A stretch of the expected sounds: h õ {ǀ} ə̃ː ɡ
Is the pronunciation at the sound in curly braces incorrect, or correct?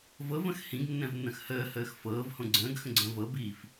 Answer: incorrect